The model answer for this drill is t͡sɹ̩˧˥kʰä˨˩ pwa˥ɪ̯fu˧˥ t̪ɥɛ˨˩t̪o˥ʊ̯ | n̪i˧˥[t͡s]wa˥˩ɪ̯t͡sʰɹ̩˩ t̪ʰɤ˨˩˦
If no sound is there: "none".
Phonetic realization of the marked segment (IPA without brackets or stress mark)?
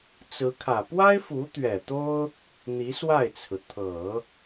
s